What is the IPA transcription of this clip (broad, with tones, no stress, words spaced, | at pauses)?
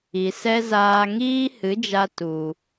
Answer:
i˨sɛ˦ zaː˧ŋiː˦hɨ˨˦d͡ʒa˧ tu˨